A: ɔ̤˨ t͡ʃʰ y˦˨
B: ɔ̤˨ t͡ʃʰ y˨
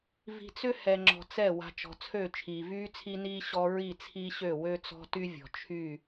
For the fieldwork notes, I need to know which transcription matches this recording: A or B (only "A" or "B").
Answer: A